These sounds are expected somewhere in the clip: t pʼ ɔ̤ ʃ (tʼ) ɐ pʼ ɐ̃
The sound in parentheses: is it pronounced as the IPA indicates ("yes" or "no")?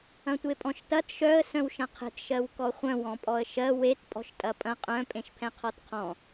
yes